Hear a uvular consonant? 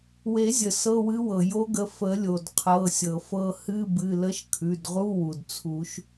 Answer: yes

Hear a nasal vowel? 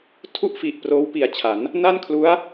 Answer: no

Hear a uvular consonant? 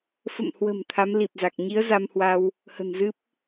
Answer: no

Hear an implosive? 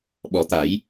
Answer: yes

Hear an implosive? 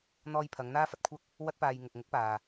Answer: no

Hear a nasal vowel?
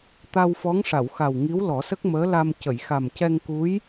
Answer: no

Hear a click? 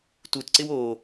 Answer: yes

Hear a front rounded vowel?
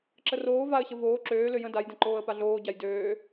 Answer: yes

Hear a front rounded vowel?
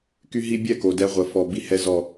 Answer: yes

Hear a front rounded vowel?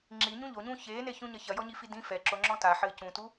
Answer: no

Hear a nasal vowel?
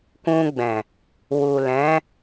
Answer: yes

